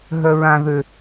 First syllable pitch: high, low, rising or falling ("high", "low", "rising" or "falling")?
high